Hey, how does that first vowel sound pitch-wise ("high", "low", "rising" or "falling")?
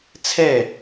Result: falling